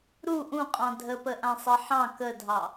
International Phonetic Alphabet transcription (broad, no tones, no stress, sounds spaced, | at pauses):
ɾ u ʔ ũ qʼ ɑ̃ dʱ ə p ə ʔ ã sˤ e ħ ɑ̃ k ə dʱ ɑ